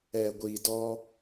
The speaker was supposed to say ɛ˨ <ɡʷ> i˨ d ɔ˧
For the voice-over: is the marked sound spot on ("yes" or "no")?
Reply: yes